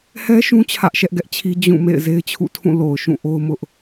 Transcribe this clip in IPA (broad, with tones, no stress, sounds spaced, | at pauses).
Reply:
h ɛ˦ ʃ ũ˦ t͡ɕʰ ä˦ ʔ ʃ ɛ˦ ʔ ɡ ɛ˦ ʔ t͡ɕʰ i˦ d͡ʑ ũ˦˨ m ḛ˦˨ ɪ̯ z e˦ ɪ̯ t͡ɕʰ ṵ˦˨ tʰ ũ˦˨ l o˨ ʊ̯ ʃ ũ˦˨ ʔ o˦ ʊ̯ m ʊ˦ ʔ